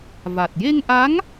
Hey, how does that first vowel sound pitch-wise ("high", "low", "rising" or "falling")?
low